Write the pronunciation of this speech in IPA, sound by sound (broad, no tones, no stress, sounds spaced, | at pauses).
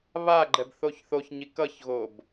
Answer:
β a ɡ͡ǃ ɛ b θ o ç θ o ç ɲ i k ʌ ç ɣ o b